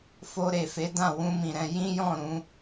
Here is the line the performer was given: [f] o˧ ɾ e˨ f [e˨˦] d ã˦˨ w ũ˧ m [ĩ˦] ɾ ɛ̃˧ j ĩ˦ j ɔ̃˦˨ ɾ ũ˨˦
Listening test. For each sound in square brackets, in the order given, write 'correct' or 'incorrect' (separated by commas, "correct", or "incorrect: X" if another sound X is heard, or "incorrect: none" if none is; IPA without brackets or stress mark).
correct, correct, incorrect: ĩ˨